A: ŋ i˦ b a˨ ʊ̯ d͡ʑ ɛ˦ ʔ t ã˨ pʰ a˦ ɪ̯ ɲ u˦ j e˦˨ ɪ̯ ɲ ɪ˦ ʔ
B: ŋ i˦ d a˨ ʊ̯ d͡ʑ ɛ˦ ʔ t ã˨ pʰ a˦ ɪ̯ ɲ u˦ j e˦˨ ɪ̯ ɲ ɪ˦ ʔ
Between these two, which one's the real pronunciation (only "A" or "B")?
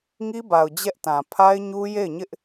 A